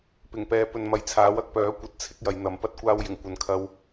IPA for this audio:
p ɪ˨˩ ŋ p ɛː˨˧ p ɵ˨ n m ɐ˨˧ j t͡sʰ aː˨˥ w ɐ˧ k̚ p œː˨˥ kʷ ɐ˨˥ t̚ t͡sʰ ɪ˥ k̚ j ɐ˨˧ j n̪ ɐ˨˧ m p ɐ˧ t̚ kʷ aː˧ w j ɪ˨˩ ŋ kʷ ɐ˨ n kʰ ɐ˧ w

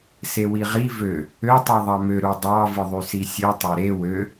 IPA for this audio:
s e w i ʁ i v ø | ø tˤ i ðˤ ɑ m ø ɾ u dˤ ɑ v ɯ ðˤ y s i sʲ ɯ tˤ e ɾ e w ø

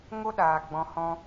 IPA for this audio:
ŋ o˦ ɗ aː˨ ɡ͡b ɔ̃˧ h ɔ̃˧

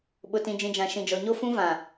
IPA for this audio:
ɓ ʊ˨ t ĩ˨ d͡ʒ ĩ˨ d͡ʒ ã˨ ʃ ĩ˨ d͡ʒ ɔ˨ ɲ o˦ f ũ˦ v ã˨

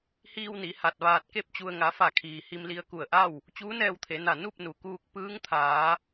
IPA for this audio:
h iː˧ w n i˩˧ h a˧˩ t̚ ʋ aː˧ t̚ k e˥˨ p̚ t͡ɕ u˧ ə̯ ŋ a˩˧ f a˧˩ kʰ iː˩ h i˧ m l i˧ ə̯ k u˧˩ ə̯ ʔ a˥˨ w | t͡ɕ uː˧˥ n ɛː˧ w t̪ʰ e˩˧ n a˧˩ n u˥˨ p̚ n u˩ k uː˧ k̚ p ɯː˧˥ ŋ t̪ʰ aː˩˧

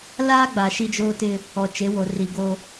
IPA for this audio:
l aː˦ ɡ͡b a˨ ʃ i˦ d͡ʒ oː˦ t ɪ˦ | ɔ˨ t͡ʃ e˨˦ w o˨ r i˨ ɡ o˦

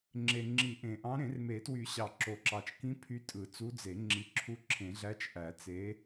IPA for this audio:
ŋ͡ǁ e˨ ŋ͡ǁ i˨˩˦ ʔ ẽ˨ ʔ ɑ̃˧˥ ɾ ẽ˨˩˦ r m e˨˩˦ t w y˨˩˦ ɕ ɑ˨ ǁ o˨ ǁ ɑ˨ t͡ʃ k ĩ˧˥ pʰ y˧˥ tʼ ɯ˨˩˦ t͡s u˧˥ d͡z e˨˩˦ ŋ͡ǁ i˨ ǁʰ u˧˥ ǁʰ ẽ˨˩˦ ɮ æ˧˥ t͡ʃ ʔ æ˨˩˦ t͡s e˧˥

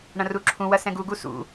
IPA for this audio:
ɳ ɐ̃ r u ǁʰ ũ w ɐ s ɛ̃ ɡ u ɡ u s ṵ

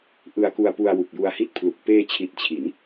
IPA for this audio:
ʔ ɯ˧ a̯ k u˧ a̯ p u˧ a̯ w u˨˩ k̚ j u˧ a̯ h i˥˩ t̚ pʰ l u˨˩ k̚ p eː˧ t͡ɕʰ i˨˩ t̚ t͡ɕʰ i˩˦ n

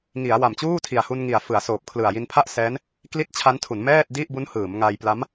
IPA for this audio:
ŋ i˩˦ a̯ w a˨˩ m t͡ɕ uː˥˩ tʰ i˨˩ a̯ h u˧ n ŋ i˨˩ a̯ f ɯ˩˦ a̯ s oː˨˩ p̚ kʰ l ɯ˨˩ a̯ j i˧ n pʰ a˥˩ ʔ s ɛː˦˥ n | k l i˥˩ t̚ t͡ɕʰ a˦˥ n tʰ u˩˦ n m ɛː˥˩ t̚ d i˥˩ ʔ b u˦˥ n h ɯː˩˦ m ŋ a˧ j p l a˦˥ m

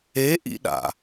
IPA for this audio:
e ʔ ḭ ɗ a̰

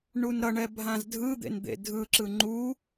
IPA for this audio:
ɳ u n ɾ ʌ ɳ ɛ bʱ ã z dʱ ɯ d̪ ḛ n d̪ ḛ dʱ ɯ ǁ ɯ ŋ͡ǃ u

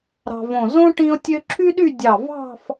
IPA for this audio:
ɾ ɑ̤˧ v õ˧˩ z õ˥ ʈ ĩ˥ ʊ̯ tʲ ø˥ ǁʰ y˥ ɗ y˥˧ dʲ ɑ˧˩ v ɑ̤˥˧ f

